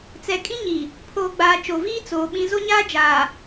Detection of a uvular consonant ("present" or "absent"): absent